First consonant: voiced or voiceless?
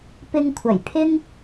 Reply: voiceless